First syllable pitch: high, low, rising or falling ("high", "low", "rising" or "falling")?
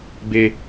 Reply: low